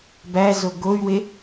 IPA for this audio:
b æ z o ɡ o y̯ w e

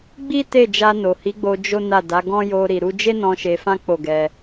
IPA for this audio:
ɡ͡b i˦ t e˦˨ d͡ʒ a˧ n o˨ h i˨˦ ɡ͡b o˧ d͡ʒ o˦ n a˦˨ d a˨˦ ɡ ɔ̃˦ j o˧ ɾ i˨ ɾ u˧ d͡ʒ e˦ n ɔ̃˧ ʃ e˧ f ã˦ k͡p o˦˨ ɡ ɛ˧

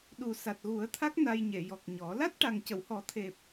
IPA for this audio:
ɗ u˨˩ s a˨˩ t̚ ɣ u˨˩˦ ə̯ t̪ʰ a˦˥ k̚ n a˧ j ɲ e˨˩˨ j ɔ˨˩ k̚ ɲ ɔ˨˩˦ l a˦˥ t̚ ʈ a˨˩ ŋ c ə˨˩˨ w h ɔ˨˩˦ t̪ʰ e˨˩ p̚

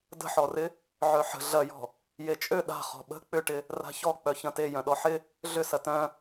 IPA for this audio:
d ə̤ ħ ɔ r ɪ | ʕ œ ħ ə̤ ɮ ɐ j ɔ̤ | j e t͡ʃʼ ø ɗ a̤ χ ɔ̤ ɓ ə̤ k͡p ʏ ʈ ɪ | r a̤ ç ɔ k͡p œ ç ɐ̃ t e j œ̃ ɗ ɔ ħ ɪ | ɮ ʏ s ɐ t œ̃

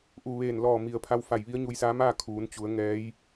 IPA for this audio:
ʔ u˧˩ ʋ eː˧˩ n l ɔː˧˩ m i˩ ə̯ pʰ a˧ w f a˧˩ j ʋ i˧˥ ə̯ ɲ u˧ j s aː˧˥ m aː˥˨ kʰ uː˩˧ n t͡ɕ u˩˧ ə̯ ŋ ɛː˧˥ j

